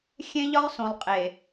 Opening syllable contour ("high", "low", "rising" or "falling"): high